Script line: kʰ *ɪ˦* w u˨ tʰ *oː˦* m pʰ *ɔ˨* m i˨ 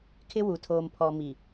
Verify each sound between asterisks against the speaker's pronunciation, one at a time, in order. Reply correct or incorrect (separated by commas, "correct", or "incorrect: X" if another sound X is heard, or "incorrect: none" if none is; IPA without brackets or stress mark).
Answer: correct, incorrect: oː˨, correct